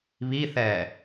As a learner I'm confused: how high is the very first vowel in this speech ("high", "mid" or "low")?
high